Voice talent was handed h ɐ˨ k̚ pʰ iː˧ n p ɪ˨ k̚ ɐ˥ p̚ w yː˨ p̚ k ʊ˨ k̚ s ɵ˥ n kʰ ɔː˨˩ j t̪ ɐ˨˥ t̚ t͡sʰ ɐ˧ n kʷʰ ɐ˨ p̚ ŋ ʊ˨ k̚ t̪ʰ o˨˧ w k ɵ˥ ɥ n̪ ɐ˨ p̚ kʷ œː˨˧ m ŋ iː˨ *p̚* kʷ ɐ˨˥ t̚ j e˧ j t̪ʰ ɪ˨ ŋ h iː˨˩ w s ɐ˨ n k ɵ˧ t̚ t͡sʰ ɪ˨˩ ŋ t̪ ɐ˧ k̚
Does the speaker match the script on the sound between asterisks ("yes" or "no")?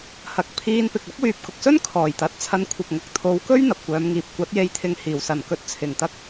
yes